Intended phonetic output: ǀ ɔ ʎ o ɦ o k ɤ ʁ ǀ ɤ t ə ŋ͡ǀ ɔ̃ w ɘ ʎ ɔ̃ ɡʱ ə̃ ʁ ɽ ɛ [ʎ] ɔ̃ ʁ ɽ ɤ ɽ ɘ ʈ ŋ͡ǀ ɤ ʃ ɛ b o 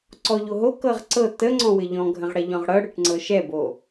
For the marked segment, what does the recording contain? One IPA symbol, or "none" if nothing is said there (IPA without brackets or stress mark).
ʎ